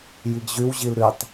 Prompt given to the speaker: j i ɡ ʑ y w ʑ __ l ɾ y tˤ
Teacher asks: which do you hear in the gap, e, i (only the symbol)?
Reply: i